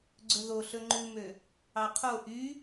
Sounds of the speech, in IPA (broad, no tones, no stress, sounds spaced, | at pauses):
ɡ͡ǀ ɵ ð o ɬ ɵ ŋ͡ǃ ʉ m ø | ɑ qʰ o ʔ y